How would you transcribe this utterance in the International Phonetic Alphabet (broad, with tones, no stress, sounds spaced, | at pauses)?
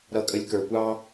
ɾ ʌ˨ kʼ ə˨ lʲ k ə˞˨ kʷ ɑ˦